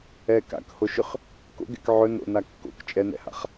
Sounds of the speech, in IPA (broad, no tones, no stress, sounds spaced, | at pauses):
ɛ k a̰ k h o ʃ ʏ χ | k o̰ ɡ ɛ̰ k ʕ ɵ n o̰ n a kː o̰ k t͡ʃʼ ɛ n ɛ̰ h a̰ χ